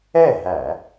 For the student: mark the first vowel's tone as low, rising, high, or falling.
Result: falling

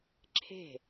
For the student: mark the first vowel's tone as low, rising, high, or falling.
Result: falling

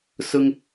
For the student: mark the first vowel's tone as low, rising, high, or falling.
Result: high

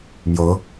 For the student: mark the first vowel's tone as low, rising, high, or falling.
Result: rising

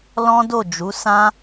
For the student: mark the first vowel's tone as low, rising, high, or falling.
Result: high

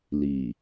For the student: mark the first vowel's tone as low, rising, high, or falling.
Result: low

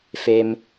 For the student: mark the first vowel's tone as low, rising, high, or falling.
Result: low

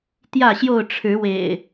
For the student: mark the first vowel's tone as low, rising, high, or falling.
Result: falling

